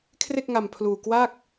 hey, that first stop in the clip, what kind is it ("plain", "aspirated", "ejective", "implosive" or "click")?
aspirated